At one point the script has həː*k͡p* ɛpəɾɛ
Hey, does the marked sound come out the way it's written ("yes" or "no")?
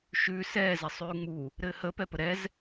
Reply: no